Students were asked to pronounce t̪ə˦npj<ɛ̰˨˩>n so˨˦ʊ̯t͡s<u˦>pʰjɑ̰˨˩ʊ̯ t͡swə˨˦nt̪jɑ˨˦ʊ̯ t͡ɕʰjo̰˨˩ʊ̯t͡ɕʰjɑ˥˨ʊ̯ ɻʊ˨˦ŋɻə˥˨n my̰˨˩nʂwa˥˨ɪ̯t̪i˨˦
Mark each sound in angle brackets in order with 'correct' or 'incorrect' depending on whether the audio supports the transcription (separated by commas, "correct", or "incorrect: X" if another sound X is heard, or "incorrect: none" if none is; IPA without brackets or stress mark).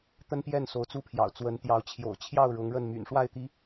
incorrect: ɛ˥˨, correct